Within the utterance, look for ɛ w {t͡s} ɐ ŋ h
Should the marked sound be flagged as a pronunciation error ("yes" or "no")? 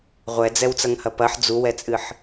no